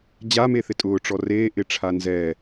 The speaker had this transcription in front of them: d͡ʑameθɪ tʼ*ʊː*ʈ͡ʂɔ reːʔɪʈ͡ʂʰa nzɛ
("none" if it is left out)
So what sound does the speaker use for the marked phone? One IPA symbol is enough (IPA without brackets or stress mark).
ʊː